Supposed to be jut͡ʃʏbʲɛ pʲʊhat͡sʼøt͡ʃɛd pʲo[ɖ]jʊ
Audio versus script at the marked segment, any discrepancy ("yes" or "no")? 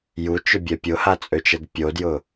yes